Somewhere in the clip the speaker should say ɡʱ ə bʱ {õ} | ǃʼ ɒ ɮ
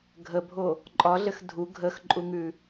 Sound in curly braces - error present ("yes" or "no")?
yes